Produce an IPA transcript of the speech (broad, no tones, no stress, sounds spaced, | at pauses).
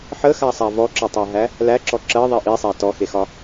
ħ ə x a sˤ a v ɔ ǁ ɒ tˤ ɜ ɦ æ | l æ ǁ ɔ ǁ ɜ ðˤ i ʔ i sˤ æ t ɔ x e x ɒ